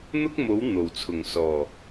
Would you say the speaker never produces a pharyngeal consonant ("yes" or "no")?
yes